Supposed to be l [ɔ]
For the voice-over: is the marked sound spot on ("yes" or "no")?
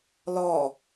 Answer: yes